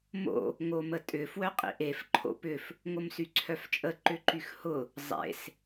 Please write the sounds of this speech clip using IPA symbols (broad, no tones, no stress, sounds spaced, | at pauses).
m o̰ | ŋ o m ə tʼ ʏ f w œ qʼ ḭ ʔ e f ǃʰ o̰ p ʏ f | ŋ o m s y ǀʰ œ f t͡ʃʼ ə ǃ ʏ ǃ y x h ʊ | zˤ ḛ s